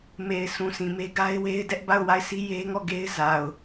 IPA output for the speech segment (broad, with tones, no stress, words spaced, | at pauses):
me˨ɪ̯ sʰũ˨sʰĩ˨me˦ ɡa˦ɪ̯we˦ɪ̯ dɛ˦ʔba˦˨ʊ̯ wa˦˨ɪ̯sʰi˦je˦ŋɔ˦˨ ɡe˦ɪ̯ za˨ʊ̯